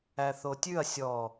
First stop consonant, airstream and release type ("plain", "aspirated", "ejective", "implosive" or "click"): plain